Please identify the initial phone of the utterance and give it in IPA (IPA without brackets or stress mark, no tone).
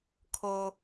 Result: kʰ